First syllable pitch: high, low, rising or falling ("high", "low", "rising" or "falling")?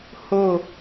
falling